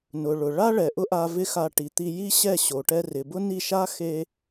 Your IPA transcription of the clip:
n ʊ˨ ɭ ʊ˨ ɭ a˦ ɭ ɛ˨ ʔ ʊ˦ ʔ a˧ v ɪ˦ x a˧ ʈ i˨ t̪ i˧ j i˦ ɕ ɛ˦˨ ɕ o˨ ʈ ɛ˧ r ɪ˨ b ʊ˦ n i˦˨ ʃ a˦ x e˧

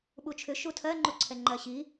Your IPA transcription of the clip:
ɓ u t͡ʃʰ ʏ ʃ u tʰ ɜ ŋ͡ǃ u ǀʰ ɛ ŋ͡ǃ ɜ ɕ i

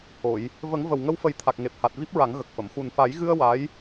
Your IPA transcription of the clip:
h o˨˩˨ j | v ə˨˩˦ ŋ v ə˨˩ w ŋ ə˧ w f ə˨˩˦ j t̪ʰ a˨˩ k̚ ŋ e˨˩ p̚ h a˨˩ t̚ v i˦˥ p̚ ɹ a˨˩˦ ŋ ɣ ə˨˩ k̚ f ə˨˩˨ m x u˨˩ n f a˨˩˦ j ɣ ɨ˧ ə̯ w a˧˥ j

